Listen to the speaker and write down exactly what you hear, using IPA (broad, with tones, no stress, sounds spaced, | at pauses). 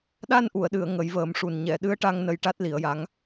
ɗ a˧ n ʔ u˨˩˨ ə̯ ɗ ɨ˨˩˨ ə̯ ŋ ə˨˩˦ j v əː˨˩˦ m ʂ u˨˩ n ɲ ɛ˨˩˨ ɗ ɨ˧˥ ə̯ ʈ a˧ ŋ n ə˧ j ʈ a˦˥ t̚ l i˨˩˦ ə̯ j a˧˥ ŋ